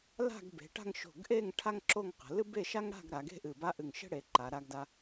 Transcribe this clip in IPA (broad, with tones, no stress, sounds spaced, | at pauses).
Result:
l a̤˥˧ ɡ b e̤˩˧ ʈ a̤˥˧ ŋ ʃ o̤˧˩ ɡ ʔ e˥˧ ŋ ʈʰ a˥ ŋ ǁ o˥˧ ŋ q ə̤˩˧ l ɨ˥ b e˥˧ ʃ a˥ ŋ ɽ a̤˥˧ ɡ ɾ a˩˧ ɡ e̤˥ ʔ ɨ˧˩ b a˥ ʔ ɨ˧˩ ŋ ʃ ə̤˥ ɽ e˩˧ ǃ a˩˧ ɾ a˧ ɡ d a˧